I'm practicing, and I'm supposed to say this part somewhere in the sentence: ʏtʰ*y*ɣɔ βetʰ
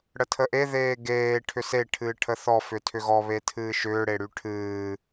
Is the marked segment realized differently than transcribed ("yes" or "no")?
yes